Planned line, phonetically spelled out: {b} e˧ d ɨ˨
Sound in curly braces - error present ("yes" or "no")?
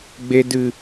yes